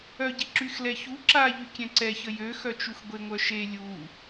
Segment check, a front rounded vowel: present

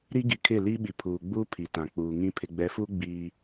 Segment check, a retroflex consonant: absent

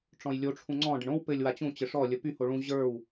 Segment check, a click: present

